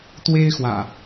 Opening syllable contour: high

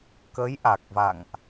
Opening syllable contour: rising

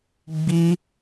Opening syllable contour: high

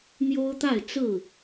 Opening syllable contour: high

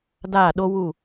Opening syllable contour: falling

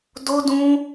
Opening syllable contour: high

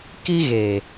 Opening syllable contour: high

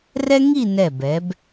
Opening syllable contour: high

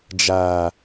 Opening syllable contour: low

